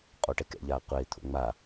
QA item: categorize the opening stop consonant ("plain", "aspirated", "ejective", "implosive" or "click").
ejective